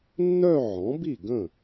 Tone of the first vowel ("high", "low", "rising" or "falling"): falling